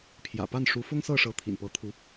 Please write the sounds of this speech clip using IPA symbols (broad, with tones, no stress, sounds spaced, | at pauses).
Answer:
pʰ j ä̰˨˩ p a˥˩ n ʂ u˧˥ f ʊ˥ ŋ s ɤ˥˩ ʂ ɤ˧˥ t̪ʰ ḭ˨˩ n p ɤ˧˥ t̪ʰ u˧˥